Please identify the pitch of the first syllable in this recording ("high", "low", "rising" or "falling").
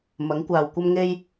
rising